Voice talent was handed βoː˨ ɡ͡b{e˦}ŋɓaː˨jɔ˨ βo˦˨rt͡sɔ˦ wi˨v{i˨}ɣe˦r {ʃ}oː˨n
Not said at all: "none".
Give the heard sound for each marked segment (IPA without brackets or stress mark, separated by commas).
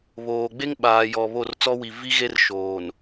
e˦, i˦, ʃ